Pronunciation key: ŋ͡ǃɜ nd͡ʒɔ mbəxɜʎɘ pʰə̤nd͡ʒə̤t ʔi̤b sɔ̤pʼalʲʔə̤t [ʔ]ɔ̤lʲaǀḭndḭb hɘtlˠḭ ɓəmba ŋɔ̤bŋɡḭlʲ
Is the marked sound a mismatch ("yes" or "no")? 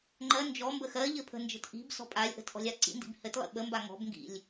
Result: no